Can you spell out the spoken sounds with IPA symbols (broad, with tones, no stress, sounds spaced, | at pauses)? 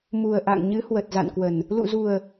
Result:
m u˨˩ ə̯ ʔ a̰˧˨ ŋ ɲ ɨ˨˦ h w ə˨˩ t̚ z a̰˧˨ n k w ə˨˩ n | l ṵ˧˨ z u˨˩ ə̯